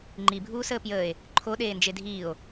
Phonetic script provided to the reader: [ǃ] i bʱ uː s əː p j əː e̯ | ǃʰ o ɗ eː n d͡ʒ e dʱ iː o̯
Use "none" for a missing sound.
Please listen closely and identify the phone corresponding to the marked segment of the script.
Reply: ŋ͡ǃ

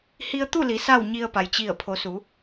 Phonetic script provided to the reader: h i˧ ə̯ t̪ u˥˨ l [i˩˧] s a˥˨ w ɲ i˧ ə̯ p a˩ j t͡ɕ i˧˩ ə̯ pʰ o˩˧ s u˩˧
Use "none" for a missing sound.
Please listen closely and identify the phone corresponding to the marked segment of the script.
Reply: i˩˧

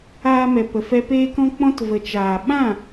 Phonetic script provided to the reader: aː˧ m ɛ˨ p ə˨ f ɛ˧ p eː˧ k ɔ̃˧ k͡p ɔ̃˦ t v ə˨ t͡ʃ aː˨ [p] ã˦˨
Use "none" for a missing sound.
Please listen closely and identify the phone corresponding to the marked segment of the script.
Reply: ɓ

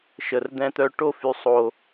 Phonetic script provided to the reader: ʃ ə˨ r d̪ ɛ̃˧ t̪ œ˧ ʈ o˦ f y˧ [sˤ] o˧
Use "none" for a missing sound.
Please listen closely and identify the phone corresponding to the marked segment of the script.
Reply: sˤ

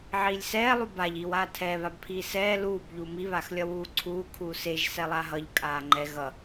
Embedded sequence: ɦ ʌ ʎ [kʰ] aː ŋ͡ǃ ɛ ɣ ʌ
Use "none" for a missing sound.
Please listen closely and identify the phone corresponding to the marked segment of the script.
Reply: kʼ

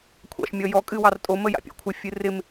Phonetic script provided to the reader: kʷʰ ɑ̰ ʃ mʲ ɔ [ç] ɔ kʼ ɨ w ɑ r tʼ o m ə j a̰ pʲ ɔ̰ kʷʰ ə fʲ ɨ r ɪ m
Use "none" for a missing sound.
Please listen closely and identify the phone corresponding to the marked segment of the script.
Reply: j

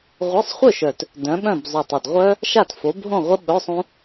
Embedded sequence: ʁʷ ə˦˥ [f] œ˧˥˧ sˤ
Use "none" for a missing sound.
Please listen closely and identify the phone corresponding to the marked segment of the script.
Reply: ɓ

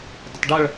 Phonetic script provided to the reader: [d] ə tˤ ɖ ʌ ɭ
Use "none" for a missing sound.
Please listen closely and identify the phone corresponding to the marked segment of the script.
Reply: d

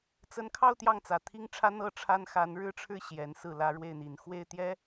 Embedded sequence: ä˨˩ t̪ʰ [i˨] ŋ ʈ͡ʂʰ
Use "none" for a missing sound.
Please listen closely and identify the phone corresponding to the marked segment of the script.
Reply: i˥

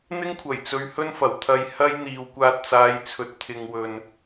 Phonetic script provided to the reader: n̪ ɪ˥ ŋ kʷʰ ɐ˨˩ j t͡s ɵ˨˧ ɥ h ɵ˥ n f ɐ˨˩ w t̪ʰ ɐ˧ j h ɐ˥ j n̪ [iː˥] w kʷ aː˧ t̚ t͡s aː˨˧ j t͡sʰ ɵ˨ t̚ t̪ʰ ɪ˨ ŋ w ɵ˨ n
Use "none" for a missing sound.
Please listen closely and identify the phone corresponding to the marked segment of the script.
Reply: iː˨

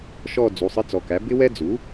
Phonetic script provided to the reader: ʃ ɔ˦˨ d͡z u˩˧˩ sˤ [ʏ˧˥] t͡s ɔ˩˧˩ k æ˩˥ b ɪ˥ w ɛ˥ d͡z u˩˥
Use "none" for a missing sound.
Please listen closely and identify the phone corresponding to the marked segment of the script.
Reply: ɪ˧˥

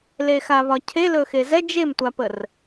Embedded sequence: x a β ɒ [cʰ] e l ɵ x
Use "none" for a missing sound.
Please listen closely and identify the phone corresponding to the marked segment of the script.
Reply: cʰ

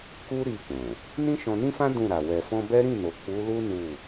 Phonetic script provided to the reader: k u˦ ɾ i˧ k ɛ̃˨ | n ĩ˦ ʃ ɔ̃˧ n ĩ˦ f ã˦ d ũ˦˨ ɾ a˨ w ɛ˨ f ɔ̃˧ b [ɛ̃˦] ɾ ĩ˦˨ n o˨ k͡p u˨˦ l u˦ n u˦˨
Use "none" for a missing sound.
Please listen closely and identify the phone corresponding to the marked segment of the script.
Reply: ɛ˦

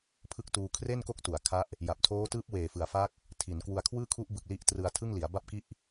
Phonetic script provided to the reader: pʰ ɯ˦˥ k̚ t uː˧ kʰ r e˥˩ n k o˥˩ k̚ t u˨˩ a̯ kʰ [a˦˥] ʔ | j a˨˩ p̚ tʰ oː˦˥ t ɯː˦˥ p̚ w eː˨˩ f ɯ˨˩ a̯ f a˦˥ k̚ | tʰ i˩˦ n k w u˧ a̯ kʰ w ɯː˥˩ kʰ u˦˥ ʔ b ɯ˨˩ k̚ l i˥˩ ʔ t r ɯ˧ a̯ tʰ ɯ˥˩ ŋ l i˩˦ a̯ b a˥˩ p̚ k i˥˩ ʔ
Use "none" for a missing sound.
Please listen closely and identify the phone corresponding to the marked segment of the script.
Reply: a˦˥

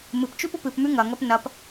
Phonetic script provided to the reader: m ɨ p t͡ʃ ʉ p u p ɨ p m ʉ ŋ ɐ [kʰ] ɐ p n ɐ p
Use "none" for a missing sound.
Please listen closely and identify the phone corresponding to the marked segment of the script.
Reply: ŋ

